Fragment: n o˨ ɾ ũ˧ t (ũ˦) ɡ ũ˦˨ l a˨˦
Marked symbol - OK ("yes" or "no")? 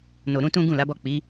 yes